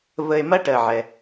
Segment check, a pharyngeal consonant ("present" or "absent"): present